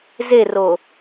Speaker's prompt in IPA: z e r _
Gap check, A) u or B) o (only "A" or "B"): B